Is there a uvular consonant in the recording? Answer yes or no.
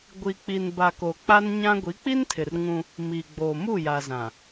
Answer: no